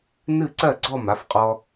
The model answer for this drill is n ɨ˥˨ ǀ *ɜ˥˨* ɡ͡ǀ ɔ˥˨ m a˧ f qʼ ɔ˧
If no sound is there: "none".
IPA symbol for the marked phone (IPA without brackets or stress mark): ɜ˥˨